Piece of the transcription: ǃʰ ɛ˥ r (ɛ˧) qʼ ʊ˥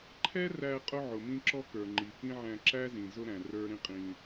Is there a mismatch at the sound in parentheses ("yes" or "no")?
yes